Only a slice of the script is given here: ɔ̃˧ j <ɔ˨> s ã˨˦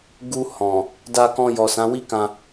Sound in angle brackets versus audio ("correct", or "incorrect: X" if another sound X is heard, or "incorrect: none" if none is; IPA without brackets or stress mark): correct